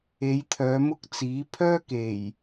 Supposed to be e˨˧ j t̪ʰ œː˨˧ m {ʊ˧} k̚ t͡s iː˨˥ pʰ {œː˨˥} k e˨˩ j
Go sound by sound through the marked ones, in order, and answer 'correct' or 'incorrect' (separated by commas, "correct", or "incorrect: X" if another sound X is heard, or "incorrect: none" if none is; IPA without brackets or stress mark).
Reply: incorrect: ʊ˥, incorrect: œː˥